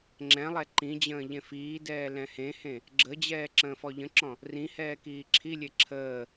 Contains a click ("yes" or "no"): yes